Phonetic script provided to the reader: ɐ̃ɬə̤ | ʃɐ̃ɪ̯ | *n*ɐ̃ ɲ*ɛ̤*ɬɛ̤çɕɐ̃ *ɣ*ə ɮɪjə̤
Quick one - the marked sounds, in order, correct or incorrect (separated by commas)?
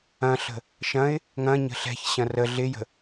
incorrect, incorrect, incorrect